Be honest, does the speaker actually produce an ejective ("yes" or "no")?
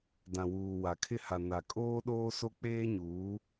yes